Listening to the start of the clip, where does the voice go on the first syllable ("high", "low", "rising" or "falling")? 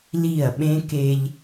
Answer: falling